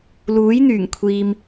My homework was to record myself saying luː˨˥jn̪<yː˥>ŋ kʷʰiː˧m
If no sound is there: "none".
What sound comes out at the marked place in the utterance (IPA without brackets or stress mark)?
yː˨˩